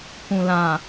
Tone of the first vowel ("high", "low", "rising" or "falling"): low